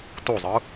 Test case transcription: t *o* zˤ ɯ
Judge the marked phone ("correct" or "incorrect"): correct